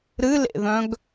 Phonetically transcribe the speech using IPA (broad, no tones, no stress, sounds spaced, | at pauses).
ɾ ɨ l ḛ ð œ̃ ɡ